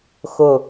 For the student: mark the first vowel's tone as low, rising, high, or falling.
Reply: falling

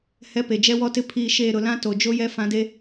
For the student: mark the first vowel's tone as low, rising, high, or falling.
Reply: rising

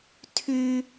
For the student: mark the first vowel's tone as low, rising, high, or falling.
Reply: high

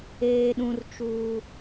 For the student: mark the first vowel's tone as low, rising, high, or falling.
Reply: high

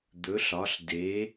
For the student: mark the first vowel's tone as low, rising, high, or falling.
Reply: rising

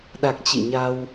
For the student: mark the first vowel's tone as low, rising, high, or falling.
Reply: low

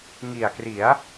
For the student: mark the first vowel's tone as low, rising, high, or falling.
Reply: low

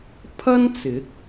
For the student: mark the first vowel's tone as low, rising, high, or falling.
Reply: high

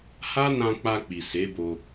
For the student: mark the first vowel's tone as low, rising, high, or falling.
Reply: high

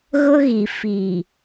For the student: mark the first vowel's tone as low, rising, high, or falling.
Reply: high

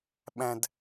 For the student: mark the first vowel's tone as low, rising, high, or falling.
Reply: low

